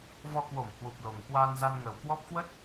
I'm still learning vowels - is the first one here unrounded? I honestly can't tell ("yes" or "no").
no